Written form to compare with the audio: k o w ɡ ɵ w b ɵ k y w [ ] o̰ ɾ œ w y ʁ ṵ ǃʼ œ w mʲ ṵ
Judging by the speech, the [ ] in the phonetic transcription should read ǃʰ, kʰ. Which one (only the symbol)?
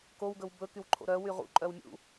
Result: ǃʰ